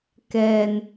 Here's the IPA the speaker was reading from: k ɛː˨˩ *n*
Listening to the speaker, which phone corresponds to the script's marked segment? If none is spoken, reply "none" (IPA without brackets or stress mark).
n